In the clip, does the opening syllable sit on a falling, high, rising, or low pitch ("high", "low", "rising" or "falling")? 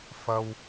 high